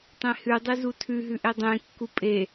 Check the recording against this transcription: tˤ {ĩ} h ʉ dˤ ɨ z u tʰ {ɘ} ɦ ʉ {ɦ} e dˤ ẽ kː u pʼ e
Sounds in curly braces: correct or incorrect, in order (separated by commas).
incorrect, incorrect, incorrect